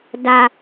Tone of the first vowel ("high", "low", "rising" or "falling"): high